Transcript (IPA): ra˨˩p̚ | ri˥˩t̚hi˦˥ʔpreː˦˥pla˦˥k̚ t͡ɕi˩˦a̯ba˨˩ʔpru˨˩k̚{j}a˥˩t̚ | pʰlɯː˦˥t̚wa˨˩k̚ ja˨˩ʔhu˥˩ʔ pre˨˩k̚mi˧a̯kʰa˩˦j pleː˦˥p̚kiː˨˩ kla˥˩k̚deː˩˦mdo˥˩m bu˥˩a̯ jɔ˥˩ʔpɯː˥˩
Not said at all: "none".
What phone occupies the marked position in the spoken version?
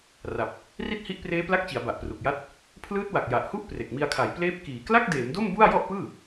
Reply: j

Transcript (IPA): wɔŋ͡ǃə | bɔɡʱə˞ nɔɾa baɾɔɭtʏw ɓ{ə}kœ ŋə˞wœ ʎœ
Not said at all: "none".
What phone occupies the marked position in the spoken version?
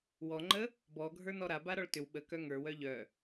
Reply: ə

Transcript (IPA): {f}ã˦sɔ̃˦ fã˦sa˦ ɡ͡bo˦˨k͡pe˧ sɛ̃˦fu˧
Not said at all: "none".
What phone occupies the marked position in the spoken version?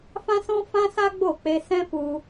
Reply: f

